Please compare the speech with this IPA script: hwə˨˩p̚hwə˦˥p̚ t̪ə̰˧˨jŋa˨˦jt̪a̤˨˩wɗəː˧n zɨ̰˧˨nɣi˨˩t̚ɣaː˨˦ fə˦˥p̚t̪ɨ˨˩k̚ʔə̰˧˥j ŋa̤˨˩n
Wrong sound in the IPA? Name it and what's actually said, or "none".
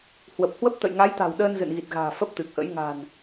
aː˨˦ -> a̤ː˨˩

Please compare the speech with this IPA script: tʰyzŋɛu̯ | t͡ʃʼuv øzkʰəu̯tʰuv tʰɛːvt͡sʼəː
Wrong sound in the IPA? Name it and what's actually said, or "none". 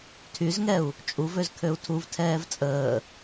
ə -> ø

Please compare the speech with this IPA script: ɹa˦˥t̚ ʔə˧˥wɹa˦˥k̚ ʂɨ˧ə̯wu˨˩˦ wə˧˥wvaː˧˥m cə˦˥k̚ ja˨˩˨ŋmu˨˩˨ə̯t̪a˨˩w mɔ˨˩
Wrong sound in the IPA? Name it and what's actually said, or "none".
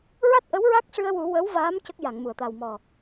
none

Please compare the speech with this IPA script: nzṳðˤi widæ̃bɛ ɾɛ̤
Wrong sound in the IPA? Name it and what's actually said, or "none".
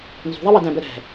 none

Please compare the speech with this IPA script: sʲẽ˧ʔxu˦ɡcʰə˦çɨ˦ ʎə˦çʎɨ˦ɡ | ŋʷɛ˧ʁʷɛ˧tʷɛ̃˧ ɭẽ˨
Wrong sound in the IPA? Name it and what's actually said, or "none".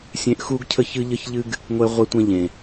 ɭ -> ʎ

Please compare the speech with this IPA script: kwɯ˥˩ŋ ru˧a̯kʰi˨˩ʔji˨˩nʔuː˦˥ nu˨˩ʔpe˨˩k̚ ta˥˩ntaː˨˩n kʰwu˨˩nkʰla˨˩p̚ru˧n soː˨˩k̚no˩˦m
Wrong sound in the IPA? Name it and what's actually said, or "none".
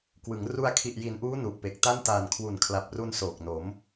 ɯ˥˩ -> ɯ˩˦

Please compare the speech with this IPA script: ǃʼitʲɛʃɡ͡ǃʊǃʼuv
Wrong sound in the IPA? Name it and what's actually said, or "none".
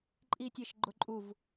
none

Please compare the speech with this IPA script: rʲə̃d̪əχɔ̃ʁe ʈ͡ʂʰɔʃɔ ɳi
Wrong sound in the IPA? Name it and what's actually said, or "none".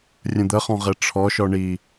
none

